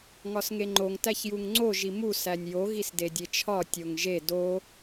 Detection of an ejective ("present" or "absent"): absent